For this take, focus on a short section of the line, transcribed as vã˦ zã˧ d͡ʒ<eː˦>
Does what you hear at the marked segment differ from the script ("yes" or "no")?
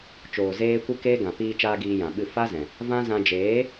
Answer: yes